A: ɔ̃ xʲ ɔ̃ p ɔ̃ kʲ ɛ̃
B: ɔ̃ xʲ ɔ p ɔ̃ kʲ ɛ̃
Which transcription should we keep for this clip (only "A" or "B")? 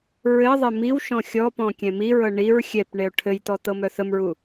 B